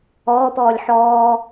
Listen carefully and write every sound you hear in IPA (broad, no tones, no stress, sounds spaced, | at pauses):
ɔː p ɔː lʲ ħ ɔː